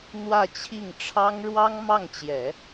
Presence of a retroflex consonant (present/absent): present